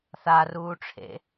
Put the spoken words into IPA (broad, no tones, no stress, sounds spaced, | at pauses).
θ a r uː ʈ͡ʂʰ ḛ